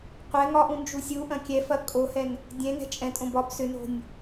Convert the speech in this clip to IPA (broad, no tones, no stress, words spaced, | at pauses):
qʷɛ ŋɒʔũ nd͡ʒusʲuʔɐ̃ kʲɛfɐ kʼohɛn | dʲɛ̃ŋɛ̤ t͡ʃʼɛ̃tʼõ bɒb sʏno̤nʲ